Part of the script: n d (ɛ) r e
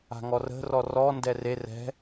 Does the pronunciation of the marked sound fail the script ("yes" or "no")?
no